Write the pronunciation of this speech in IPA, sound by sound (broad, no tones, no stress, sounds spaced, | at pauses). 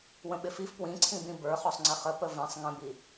w ə̃ ɓ ɪ f i f p w ĩ ǀʰ ĩ b ĩ b ə˞ χ ɔ sˤ ŋ͡ǀ ɪ χ ə p ə v ĩ sˤ ŋ ə̃ b i